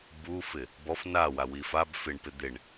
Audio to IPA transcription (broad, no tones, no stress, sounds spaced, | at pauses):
b u f ɪ | b ɔ f n a w a w i f a b f ɪ ɳ p ɪ d̪ ɪ ɳ